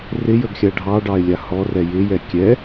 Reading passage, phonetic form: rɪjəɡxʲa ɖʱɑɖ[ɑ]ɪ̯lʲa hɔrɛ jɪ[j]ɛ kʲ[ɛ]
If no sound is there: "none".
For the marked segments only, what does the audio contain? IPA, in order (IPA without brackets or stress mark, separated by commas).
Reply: ɑ, j, ɛ